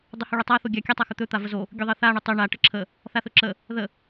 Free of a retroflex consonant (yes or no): no